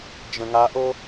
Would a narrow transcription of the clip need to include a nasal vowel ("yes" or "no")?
yes